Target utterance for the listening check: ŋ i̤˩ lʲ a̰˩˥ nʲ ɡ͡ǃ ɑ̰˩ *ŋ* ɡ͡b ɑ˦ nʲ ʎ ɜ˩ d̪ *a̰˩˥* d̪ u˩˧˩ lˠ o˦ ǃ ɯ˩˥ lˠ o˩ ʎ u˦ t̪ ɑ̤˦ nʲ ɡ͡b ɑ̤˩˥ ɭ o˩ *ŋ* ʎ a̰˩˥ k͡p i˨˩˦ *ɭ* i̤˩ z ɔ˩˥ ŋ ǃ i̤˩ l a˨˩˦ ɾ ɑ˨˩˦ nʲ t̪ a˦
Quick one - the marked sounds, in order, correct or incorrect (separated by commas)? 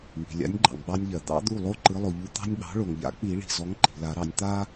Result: correct, incorrect, correct, correct